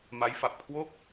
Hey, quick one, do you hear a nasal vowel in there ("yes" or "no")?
no